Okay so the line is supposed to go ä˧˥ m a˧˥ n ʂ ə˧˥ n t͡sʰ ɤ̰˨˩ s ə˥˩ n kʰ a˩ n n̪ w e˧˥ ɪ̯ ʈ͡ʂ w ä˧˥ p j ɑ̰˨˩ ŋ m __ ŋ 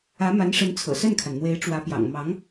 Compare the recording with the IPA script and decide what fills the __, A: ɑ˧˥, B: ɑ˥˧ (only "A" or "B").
A